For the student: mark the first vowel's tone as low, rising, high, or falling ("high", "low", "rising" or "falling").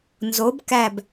rising